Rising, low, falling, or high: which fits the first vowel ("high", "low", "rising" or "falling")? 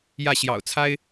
falling